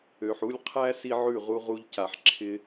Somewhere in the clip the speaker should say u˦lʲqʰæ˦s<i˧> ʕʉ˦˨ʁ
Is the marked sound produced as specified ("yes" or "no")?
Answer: yes